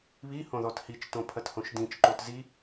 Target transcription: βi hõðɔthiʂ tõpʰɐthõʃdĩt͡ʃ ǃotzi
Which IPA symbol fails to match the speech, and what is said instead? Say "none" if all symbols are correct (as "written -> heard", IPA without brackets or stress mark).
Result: ʂ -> t͡ʃ